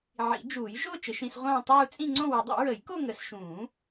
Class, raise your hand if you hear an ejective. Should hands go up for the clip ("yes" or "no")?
yes